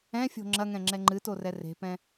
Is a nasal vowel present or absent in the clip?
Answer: present